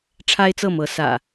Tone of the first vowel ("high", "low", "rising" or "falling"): high